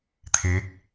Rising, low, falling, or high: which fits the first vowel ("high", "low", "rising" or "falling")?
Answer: rising